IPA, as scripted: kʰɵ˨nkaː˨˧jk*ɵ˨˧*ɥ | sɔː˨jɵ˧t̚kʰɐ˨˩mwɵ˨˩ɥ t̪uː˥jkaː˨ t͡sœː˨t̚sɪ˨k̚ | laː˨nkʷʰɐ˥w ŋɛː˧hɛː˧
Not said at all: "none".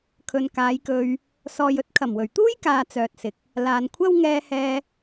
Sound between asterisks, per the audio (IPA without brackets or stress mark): ɵ˧